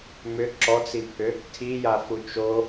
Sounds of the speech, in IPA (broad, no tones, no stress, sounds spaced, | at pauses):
m ʏ ǁ ɔ t͡s i pʰ ʏ | tʰ i j a f u t͡ʃ o